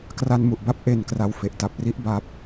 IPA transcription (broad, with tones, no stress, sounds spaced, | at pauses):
k r a˧ n m u˨˩ ʔ b a˦˥ p̚ ʔ e˨˩ n k r a˨˩ w f e˨˩ ʔ t a˨˩ p̚ r i˦˥ ʔ b a˨˩ p̚